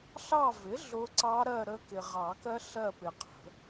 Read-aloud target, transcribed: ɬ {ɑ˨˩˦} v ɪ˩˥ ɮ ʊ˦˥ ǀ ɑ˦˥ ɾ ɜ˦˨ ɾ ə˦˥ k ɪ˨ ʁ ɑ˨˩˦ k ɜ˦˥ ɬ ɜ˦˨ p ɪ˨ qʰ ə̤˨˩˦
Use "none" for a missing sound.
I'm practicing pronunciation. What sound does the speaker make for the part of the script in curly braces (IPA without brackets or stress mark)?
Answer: ɑ˦˨